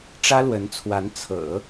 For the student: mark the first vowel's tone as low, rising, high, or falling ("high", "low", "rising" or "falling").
high